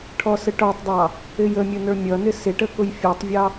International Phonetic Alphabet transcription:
ʈʰ ɔ s ə ʈ ɔ tˤ dˤ ɑ | ɪ j ə mʲ ʊ n ə˞ mʲ ʌ n ɪ s ɪ ʈ ə k ʊ j fʲ ɔ tˤ vʲ ɑ

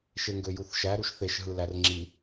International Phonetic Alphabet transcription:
ʃ e ŋ ɡ ø j u θ ʃ æ ɾ u ʃ θ e ʃ ɦ ɯ l æ r ŋ͡ǁ i

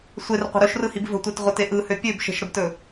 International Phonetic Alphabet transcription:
sʷ e r qʷ ə̤ ɾ ɵ ʃ r ɯ h i b v ə̤ tʷ e t ʁʷ ə t e ʔ ɯ h ø pʲ ø b ʃ ə̤ ʃ ɾ ə b t ɵ

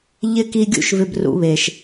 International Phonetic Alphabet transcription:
ʎ ɪ˥ k i˦ ɡʲ ṵ˥ ʃ v ɪ˥ b r ṵ˦ β eː˨ ʃ

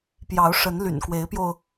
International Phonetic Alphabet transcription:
p j ɑ˨˦ ʊ̯ ʂ ə˨˦ n l y̰˨˩ n k w e˨˦ ɪ̯ p j o˧ ʊ̯

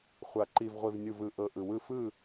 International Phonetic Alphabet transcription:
χʷ a˨ ǃ i˨ v ʁʷ i˨ v nʲ u˨ v ɯ˨ ʔ ɤ˨ ʔ ɯ˨ w ɯ˦˨ f ɯ˦˨

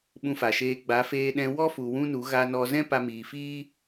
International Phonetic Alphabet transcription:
ɓ ũ˧ f a˨ ʃ eː˧ ɡ͡b a˨˦ f eː˧ ɗ ɛ̃˧ w ɔ˦ f u˨ w ũ˦ n u˨˦ ɣ a˧ n ɔ˧ z ɛ̃˦ p a˧ m iː˨ f iː˦

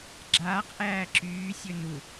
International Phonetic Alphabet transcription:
ɡ͡ǁ aː q ʔ æː ǁ yː sʲ ɵ n u

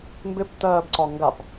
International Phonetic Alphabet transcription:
m b ɪ p t ɜː b ǀ ɒ ŋ ɡ a p

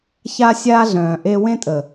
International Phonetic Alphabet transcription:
ç a˦ sʲ aː˦ ɮ œ̃ː˨ ʔ e˦ w ẽ˦ tʼ ə˨

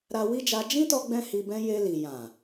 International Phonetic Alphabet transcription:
ɾ a˧ w i˦ d͡ʒ a˧ d͡ʒ ĩ˦ t ɔ˧ ɡ͡b ɛ̃˧ h i˧ b ɛ̃˦ j e˧ l i˨ j ã˨

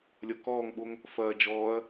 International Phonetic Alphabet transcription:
lʲ ʌ k ɔː ŋ ɓ o ŋ | f ɐː d͡ʒ ɔː ɐ̯

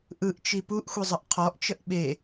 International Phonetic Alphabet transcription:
ʔ ɯ ʔ t͡ʃ i p u ʔ xʷ i zˤ ə ʔ qʰ ɔ ʔ t͡ʃ ə ʔ ɓ e

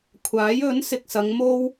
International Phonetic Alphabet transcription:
kʷʰ aː˨˥ j ɵ˨˥ n s ɪ˨ k̚ s ɐ˨˧ ŋ m o˥ w

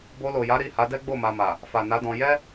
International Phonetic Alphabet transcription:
b o˧ l o˨ j a˨˦ ɾ i˦˨ h a˨˦ d ɛ˦ ɡ͡b o˦˨ m a˧ m a˨ | f a˨ n a˨˦ d ɔ̃˧ j ɛ˦

